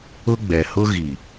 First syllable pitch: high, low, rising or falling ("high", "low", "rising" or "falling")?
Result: high